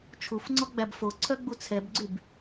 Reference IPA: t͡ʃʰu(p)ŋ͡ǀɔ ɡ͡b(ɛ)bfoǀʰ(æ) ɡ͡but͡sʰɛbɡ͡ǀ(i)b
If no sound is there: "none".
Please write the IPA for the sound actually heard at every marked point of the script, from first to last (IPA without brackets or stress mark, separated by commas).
f, æ, œ, y